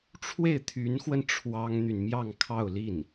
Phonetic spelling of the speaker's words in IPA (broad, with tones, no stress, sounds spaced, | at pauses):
ʈ͡ʂʰ w e˥˩ ɪ̯ t̪ʰ y˧˥ n x w ə˧ n ʈ͡ʂʰ w ɑ˥ ŋ n̪ y˨ n m j ɑ˥˧ ŋ kʰ ɑ˥˧ ʊ̯ l i˥˩ n